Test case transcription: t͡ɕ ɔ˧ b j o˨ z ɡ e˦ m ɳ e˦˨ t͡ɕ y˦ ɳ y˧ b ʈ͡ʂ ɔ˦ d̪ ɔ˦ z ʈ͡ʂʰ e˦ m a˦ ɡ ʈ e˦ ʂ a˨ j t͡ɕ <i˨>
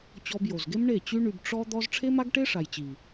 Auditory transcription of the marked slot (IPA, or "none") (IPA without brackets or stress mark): i˨